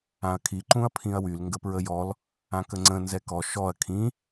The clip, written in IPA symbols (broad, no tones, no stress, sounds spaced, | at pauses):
ã ɐ̯ kʰ i ǃ ũ ɐ̯ pʰ ĩ ɐ̯ w y l ŋ ɡ ə p ɹ ə j ɔ l | ã k ə ŋ͡ǀ ə̃ n z ɛ k ɔ ʃ ɔ ɐ̯ kʰ ĩ